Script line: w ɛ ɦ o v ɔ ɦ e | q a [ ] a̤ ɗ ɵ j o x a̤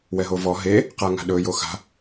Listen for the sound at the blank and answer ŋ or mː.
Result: ŋ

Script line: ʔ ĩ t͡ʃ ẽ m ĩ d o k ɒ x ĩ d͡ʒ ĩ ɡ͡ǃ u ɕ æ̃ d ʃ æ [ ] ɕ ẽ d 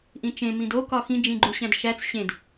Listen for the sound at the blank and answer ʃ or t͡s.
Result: t͡s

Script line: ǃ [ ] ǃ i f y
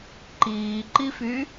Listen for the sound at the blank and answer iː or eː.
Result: iː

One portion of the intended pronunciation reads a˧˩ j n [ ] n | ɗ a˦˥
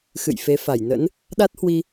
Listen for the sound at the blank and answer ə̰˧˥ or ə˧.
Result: ə̰˧˥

